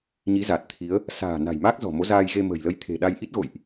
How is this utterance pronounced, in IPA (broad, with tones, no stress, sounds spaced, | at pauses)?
ɲ i˨˦ z a˨˩ t̚ t̪ʰ i˨˦ ə̯ | s a̤ː˨˩ n a̤˨˩ j m aː˦˥ k̚ z ɔ̤˨˩ m o˨˦ z aː˧ j ɣ e˧ m ə̤˨˩ j l ə˧ j t̪ʰ e̤˨˩ ɗ a˧ j ʔ i˦˥ t̚ ɣ o̰˧˨ j ʔ